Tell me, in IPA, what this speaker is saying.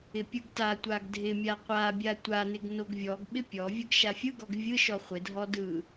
ɪ pʲ ɯ ɡ t a tʷ a ɡ dʱ ɪ mʲ a qʷ a bʲ a tʷ a n ɪ ɡ n o ɡ vʲ ɔ ɡ ɓ ɪ pʲ ɔ vʲ ɯ ɡ ʃ a fʲ ɯ ɡ ɔ ɡ vʲ ɯ ʃ ɔ χʷ ɪ dʱ ɔ d ɯ

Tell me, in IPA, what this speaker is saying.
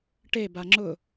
ʈ e b a ŋ͡ǁ ʊ

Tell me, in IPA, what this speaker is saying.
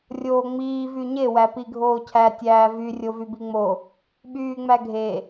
rʲ oː ŋ͡m iː v y ɲ e w æ p i ɡʱ oː cʰ æ tʲ æː v y rʲ o v y b i ŋ͡m o | ɓ yː ŋ͡m æ ɡʱ e

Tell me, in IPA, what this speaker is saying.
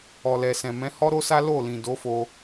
ɔ˨ l ɛ˨ s ɛ̃˨ m ɛ̃˨˦ h ɔ˦ ɾ o˦ s a˦ l o˦˨ l ĩ˨ d o˨˦ f o˧

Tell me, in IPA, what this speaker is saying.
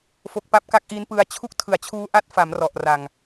f o˨˩ k̚ p a˦˥ p̚ k a˦˥ k̚ ʔ i˦˥ n p ɯ˧ a̯ t͡ɕʰ u˥˩ k̚ tʰ ɯ˨˩ a̯ t͡ɕʰ uː˦˥ ʔ a˦˥ t̚ f a˩˦ m r ɔ˨˩ ʔ r a˨˩ ŋ

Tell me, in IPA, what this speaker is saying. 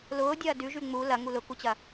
l ʊː dʲ ɐː d ʉ ʒ ʉ ŋ͡m u l ɐ ŋ u l ʊ k u t͡ɕ ɐ

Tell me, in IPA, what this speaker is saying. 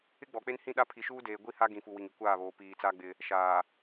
ɪ˦ ɡ͡b ɔ˨ k͡p e˦ n h ĩ˦˨ ɗ a˦ pʰ i˨ ʃ uː˦ d eː˨ ɡʷ i˦˨ h a˦ ɡ ĩ˨ f u˨ w i˨ ŋ i˨ kʷ aː˦˨ β oː˨ p iː˨ t͡s a˦ ɡ͡b ɪ˦ | ʃ aː˨

